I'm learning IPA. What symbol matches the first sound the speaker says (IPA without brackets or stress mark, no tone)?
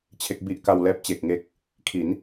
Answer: t͡ɕʰ